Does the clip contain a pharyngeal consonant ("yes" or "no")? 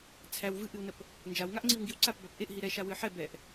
yes